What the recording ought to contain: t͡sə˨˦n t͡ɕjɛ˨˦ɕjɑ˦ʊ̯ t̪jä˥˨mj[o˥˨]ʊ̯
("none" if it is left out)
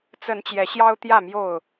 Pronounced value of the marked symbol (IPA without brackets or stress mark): o˥˨